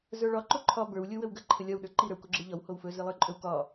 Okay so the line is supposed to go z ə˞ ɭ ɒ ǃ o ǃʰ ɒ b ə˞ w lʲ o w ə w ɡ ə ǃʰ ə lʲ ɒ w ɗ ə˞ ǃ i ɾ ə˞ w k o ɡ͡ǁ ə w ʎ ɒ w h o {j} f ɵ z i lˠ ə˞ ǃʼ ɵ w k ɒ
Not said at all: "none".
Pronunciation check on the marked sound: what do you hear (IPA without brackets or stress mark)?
w